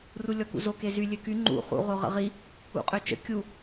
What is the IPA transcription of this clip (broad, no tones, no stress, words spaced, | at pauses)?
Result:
rulʲɔkṵzo kezy lʲøky ŋ͡ǃṵ χṵ ʁoʁə̰ʁi | ṵqʼøt͡ʃə̰ kʲu